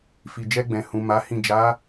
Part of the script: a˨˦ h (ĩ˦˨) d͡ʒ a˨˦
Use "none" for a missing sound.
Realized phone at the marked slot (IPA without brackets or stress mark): ĩ˦˨